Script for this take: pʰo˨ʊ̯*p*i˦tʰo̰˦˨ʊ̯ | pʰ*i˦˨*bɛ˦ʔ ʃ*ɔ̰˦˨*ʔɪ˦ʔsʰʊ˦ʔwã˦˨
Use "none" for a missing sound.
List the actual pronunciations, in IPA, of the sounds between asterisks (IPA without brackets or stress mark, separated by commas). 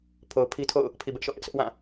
pʰ, i˨, ɔ̰˦˨